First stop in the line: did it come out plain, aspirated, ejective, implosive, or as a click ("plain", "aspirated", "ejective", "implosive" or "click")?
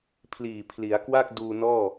aspirated